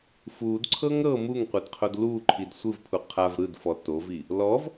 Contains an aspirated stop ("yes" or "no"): yes